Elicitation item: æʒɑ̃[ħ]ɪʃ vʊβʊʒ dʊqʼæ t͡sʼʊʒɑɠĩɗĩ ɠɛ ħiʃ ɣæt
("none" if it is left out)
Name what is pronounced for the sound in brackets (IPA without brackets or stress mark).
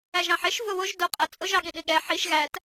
ħ